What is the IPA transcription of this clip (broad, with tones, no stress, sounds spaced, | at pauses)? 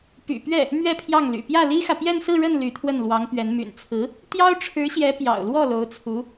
p y̰˨˩ p ɥ ɛ˥˩ | m ɥ ɛ˥˧ pʰ j ɑ˥˩ ŋ l y̰˨˩ p j ä˥˩ l i˥ x ä˨ p j ɛ˥˧ n s ɹ̩˥˧ ɻ ə˥˩ n l y˧˥ t̪ʰ w ə˥˩ n l w ɑ˧˥ ŋ p ɥ ɛ˧˥ n m y̰˨˩ n t͡sʰ ɹ̩˧˥ | t̪ j ɑ˥ ʊ̯ ʈ͡ʂʰ ɻ̩˧˥ ɕ j ɛ˧˥ p j ɑ̰˨˩ ʊ̯ l w ɔ˥˩ l o˧˥ ʊ̯ t͡sʰ u˧˥